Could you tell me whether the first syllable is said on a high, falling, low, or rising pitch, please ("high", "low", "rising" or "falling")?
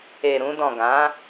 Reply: low